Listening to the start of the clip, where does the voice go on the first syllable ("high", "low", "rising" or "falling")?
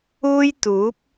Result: high